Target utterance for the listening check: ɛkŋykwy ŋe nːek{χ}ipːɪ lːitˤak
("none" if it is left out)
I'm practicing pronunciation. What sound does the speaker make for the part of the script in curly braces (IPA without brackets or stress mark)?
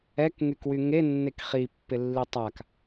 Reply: χ